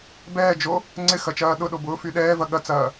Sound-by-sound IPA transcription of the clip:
b ɛː d͡ʒ o | ŋ͡ǀ ɪ x ɐ t͡ʃ ɐː ɗ ʊ ɗ o b ʊː f y ɗ ɛː v ɐ ɠ ɐ t͡s ɐː

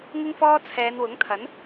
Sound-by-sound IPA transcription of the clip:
ŋ ɪ˥ ŋ f ɔː˥ t͡sʰ ɛː˨˧ n w ʊ˨˥ ŋ t̪ʰ ɐ˨˥ n

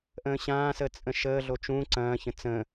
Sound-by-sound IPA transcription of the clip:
ʔ ə̃ː ɕ ãː s əː t͡sʼ ə̃ ʃ əː ɮ o t͡ʃ ũ ǀ ɐ̃ː ç ə̃ t͡s ə̃

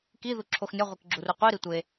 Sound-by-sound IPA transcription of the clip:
k i ð u ǁʰ o x nʲ ɒ ʁʷ e k ɡ͡ǁ u r u qʷ i ɾ i tʷ e

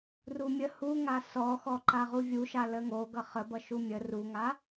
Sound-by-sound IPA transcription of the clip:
r u mʲ ə h u ŋ a s ɔ x ɔ ǃ a ʁ u vʲ u ʃ a l ə ŋ o ɡ ʌ χ ə b ʌ ʃ u mʲ ə r u ŋ a

